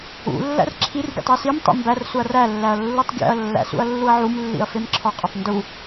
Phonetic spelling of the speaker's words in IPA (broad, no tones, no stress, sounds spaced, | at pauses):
ṵ lː æ̰ r ǁʰ i r ɡʲ ṵ tˤ e s i m tˤ ḭ m b æ r s u ɐ̯ r æ lː æ ɐ̯ lː u tˤ ɡʲ æ̰ ɐ̯ lː æ̰ s ṵ ɐ̯ lː u ɐ̯ ʕ u m lː ḭ ɐ̯ f e m ǁʰ ɒ qʼ ɒ tˤ n d u